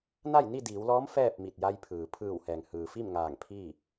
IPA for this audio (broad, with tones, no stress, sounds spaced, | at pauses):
n a˥˨ j n i˥˨ d iː˩˧ w l ɔː˧˥ m f ɛː˥˨ p̚ m i˧˩ t̚ j a˧ j pʰ ɯː˩ pʰ ɯː˧˩ w h ɛː˩ ŋ h ɯː˩ f i˥˨ m ŋ aː˧˩ ŋ pʰ iː˥˨